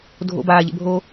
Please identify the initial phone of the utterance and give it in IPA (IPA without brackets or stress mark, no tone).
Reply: dʱ